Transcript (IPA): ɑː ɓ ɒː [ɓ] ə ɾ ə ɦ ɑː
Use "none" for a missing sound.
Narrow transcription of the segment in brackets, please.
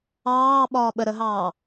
ɓ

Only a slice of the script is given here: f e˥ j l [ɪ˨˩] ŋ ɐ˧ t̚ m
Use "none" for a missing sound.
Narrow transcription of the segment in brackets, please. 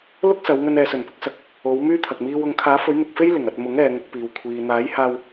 ɪ˨˩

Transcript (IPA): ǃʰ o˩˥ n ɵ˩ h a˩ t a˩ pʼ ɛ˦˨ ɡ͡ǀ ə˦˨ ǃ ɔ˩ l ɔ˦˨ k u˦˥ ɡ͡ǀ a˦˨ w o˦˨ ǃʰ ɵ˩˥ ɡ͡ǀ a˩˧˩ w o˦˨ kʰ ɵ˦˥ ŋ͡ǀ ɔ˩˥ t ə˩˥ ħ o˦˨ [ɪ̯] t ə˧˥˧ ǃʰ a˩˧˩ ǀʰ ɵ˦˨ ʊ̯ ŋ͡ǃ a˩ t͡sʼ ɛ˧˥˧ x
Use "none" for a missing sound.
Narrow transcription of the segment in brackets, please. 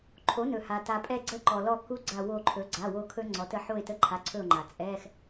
ɪ̯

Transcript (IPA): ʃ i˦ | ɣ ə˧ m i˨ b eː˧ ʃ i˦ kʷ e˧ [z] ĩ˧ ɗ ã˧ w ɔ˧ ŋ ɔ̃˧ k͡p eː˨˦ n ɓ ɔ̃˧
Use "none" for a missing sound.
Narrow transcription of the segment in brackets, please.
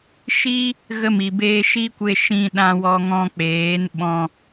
ʃ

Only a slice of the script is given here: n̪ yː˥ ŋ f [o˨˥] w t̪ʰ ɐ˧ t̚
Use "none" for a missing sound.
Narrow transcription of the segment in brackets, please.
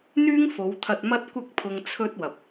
o˨˧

